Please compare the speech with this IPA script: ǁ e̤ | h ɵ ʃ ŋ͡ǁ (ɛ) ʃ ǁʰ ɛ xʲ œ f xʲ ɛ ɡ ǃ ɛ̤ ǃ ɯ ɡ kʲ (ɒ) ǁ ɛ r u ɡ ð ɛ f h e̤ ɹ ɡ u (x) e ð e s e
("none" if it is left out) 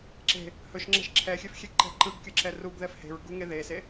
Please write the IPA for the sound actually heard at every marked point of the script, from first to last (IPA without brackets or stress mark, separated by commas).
ɛ̤, ʌ, ŋ